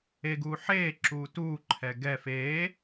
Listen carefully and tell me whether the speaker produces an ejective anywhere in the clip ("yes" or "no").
no